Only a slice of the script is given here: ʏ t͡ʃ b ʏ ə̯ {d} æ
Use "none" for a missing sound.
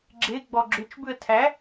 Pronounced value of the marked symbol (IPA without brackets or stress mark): tʰ